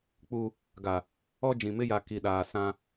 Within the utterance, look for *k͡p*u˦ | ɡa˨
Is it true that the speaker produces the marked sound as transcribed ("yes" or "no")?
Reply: yes